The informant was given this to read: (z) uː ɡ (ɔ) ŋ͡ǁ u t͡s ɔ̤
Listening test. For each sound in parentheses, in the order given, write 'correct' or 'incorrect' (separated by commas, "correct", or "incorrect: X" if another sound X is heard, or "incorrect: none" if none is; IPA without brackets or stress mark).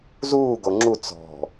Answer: correct, incorrect: o